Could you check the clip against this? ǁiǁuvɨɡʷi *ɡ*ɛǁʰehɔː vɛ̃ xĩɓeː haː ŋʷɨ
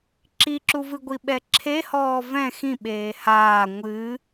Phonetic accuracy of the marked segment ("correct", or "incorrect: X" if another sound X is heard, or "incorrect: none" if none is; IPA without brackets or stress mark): incorrect: ɓ